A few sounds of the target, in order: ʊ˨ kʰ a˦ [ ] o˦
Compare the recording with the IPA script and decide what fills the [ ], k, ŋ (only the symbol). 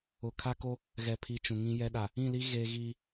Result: k